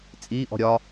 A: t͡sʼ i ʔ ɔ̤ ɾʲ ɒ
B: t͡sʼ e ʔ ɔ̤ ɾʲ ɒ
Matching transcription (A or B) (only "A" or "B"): A